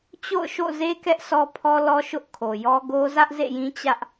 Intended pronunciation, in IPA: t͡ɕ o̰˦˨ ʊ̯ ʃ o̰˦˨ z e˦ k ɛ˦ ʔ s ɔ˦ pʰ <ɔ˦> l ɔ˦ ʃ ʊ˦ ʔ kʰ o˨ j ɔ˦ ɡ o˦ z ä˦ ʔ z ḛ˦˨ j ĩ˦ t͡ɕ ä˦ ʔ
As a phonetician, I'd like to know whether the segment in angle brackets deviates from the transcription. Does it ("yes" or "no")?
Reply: no